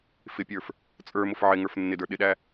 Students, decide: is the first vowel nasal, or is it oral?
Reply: oral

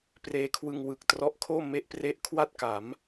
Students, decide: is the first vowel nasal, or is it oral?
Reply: oral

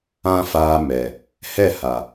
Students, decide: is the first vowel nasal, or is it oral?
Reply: nasal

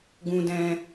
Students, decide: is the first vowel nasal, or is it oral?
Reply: nasal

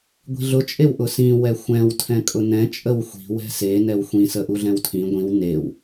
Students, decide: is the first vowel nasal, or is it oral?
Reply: oral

